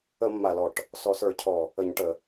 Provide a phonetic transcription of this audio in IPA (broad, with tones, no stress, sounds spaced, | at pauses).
ə˧˩˧ mː a˨˩ l ɔ˨˩ ʈ | s ɔ˨˩ s ə˞˧˩˧ cʰ ɔ˨˩ | ə˧˩˧ ɲ ʈ ə˧˩˧